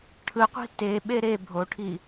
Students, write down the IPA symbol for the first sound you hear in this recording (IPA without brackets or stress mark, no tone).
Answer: ʈʰ